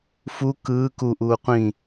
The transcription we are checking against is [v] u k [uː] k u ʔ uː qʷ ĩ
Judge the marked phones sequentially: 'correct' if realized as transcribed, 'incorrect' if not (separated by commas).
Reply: incorrect, incorrect